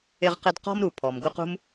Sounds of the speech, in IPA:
ɪ˦ ʁ q ɪ˦ d q ɔ̤˥ m ɾ u˩ pʰ ɔ˩ m ɡ u˦ q ṳ˥ m

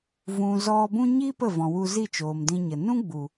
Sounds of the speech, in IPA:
v ũ˨ z ɔ˧ b ũ˦ ɲ i˦ p ə˦˨ v ɔ̃˨ w u˧ z i˦˨ t͡ʃ oː˨ m d ĩ˧ ɲ ə˨ n ũ˦ ɡ͡b u˨

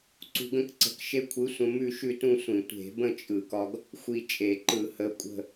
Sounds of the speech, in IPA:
ǀ ṳ˧ ɡ ə̃˥˧ k ǀ ə̤˧ k ʃ e˧ kʷʰ ɯ˨˥ sʷ ə̃˧ m ʉ˥˧ ʃ ʉ˥˧ t ũ˥˧ sʷ ĩ˧˩˧ tʷ e̤˧˩˧ b ə̃˥˧ t͡ʃʼ ɯ˧˩˧ k ɒ˧ ɡ | xʷ i˧ t͡ʃʼ e˧˩˧ ǃ ɯ˧˩˧ h ə˨˥ kʷʼ ə̤˥˧

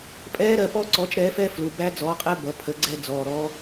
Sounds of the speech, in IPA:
pʼ ɛː˦˥ ɾ ɜ˩˧˩ p ɔ˦˥ ǀ ɔ˨˥ t͡ʃ ɾ ɛː˨˥ f ɛ˦˥ f l u˩˧˩ b æ˦˥ d͡z ɔ˨˥ qʼ ɛ˦˥ b ʌ˩˧˩ pʰ ə˨˥ ɡ͡ǀ ɛ˦˥ d͡z ɔː˩˧˩ ɾ ɔː˦˥

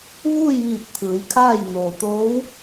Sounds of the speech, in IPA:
ʋ uː˥˨ j ʋ iː˧˩ p̚ t̪ʰ ɯː˩˧ j kʰ aː˥˨ j n oː˩ t̪ oː˧˥ w

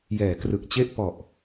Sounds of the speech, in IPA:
j ɛː˩˦ k r ɯ˨˩ k̚ t͡ɕ e˥˩ ʔ p ɔ˨˩ ʔ

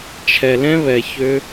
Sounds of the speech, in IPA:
t͡ʃʰ ɛ˧ l ɛ̃˦ β ɛ˧ ç ø˦

